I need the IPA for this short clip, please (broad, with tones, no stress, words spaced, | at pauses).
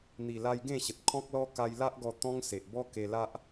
n̪i˨˩la˧j ɡẽ˥˧ɕə˨t̚kʰɔ̃˦k̚lɔ˦ ka˧jla˦ʔɡɔ˧ t̪ɔ̃˦ŋse˨ʔ bɔ˦ke˧la˦ʔ